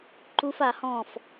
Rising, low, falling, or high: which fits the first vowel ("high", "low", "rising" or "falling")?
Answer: high